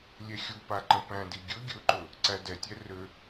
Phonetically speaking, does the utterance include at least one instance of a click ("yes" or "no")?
yes